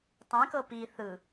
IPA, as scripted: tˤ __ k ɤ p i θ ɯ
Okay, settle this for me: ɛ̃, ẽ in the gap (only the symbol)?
ɛ̃